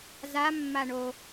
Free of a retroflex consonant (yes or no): no